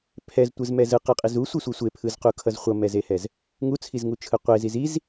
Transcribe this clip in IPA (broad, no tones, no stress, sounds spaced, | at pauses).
pʰ ɛ z tʷ ɯ z m ɛ z ɯ q ɯ qʼ i z u sʷ i sʷ i sʷ e pʰ ɯ z q u kʰ ʌ z χʷ ʌ m ɛ z e h ɛ z | ŋ u t͡sʰ i z ŋ u t͡ʃʰ ɯ qʷ e z i z i z